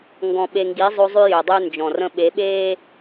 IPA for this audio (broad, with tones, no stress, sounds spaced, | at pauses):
ŋ ɡ ɔ̃˨ ɓ e˨ ŋ ɡ i˨˦ zˤ o˦ zˤ ʉ˦ j ø˨ dˤ ʉ˦ n d͡ʒ ɔ̃˨ r ə̃˦ ɓ e˨˦ ɓ eː˦